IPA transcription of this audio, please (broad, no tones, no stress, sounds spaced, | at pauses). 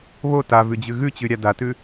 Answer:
β o t a v ʉ d͡ʑ ʉ ɣ ʉ t͡ɕ ʉ ɾʲ a d a t ʉ